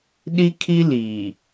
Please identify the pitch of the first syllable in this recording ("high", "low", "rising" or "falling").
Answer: high